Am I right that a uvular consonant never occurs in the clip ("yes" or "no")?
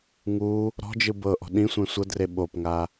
yes